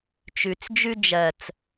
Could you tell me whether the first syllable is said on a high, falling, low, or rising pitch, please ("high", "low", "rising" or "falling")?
low